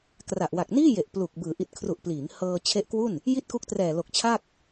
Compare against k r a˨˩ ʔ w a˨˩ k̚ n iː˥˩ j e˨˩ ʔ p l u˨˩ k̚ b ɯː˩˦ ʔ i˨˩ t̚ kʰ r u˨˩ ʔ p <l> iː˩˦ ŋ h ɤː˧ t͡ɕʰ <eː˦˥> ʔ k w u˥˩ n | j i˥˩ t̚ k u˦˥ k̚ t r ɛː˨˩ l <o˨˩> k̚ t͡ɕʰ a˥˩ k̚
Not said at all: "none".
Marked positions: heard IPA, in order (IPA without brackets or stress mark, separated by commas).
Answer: l, e˦˥, o˨˩